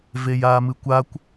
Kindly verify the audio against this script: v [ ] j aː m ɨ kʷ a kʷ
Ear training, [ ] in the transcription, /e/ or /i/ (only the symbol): e